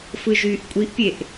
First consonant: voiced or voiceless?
voiceless